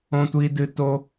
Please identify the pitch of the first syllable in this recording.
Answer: high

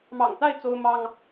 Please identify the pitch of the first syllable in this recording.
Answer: low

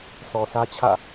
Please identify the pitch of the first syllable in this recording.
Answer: low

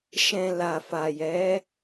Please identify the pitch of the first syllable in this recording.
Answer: low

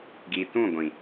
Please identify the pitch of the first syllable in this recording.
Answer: low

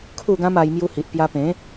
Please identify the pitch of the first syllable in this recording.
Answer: falling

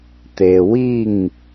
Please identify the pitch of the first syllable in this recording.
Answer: low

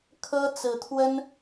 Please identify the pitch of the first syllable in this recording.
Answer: high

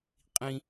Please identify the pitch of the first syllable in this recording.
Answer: high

